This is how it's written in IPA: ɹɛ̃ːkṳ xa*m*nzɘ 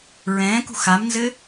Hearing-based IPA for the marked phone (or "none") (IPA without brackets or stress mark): m